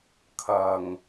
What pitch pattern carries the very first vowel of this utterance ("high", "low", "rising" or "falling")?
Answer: low